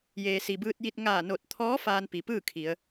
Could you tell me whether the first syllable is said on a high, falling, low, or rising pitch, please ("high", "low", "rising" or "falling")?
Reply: low